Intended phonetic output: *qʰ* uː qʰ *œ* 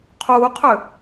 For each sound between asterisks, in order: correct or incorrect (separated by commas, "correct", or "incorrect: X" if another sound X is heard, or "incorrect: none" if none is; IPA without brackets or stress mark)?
correct, incorrect: ø